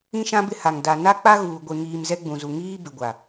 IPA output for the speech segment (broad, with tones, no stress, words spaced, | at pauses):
ĩ˦ʃã˦ bɪ˦ha˨ŋ da˨ na˦k͡pa˦ɣuː˨ ɡʷe˨ŋiː˨m zɛ˦ɡ͡bũ˨zu˨ ŋiː˦bɪ˨ɡʷa˨